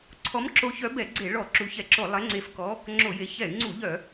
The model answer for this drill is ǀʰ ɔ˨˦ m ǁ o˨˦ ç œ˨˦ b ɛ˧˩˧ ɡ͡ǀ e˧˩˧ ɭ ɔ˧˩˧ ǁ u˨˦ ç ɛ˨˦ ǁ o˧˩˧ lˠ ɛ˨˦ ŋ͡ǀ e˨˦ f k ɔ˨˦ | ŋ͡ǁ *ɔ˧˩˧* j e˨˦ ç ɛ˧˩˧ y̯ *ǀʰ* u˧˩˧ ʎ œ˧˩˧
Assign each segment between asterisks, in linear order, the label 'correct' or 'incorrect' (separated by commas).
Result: incorrect, incorrect